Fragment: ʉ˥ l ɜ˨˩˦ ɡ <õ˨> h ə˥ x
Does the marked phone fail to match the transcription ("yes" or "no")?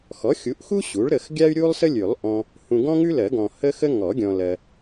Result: yes